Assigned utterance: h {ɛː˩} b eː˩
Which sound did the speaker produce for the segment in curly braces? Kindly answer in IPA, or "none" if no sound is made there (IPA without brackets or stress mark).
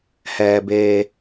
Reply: ɛː˩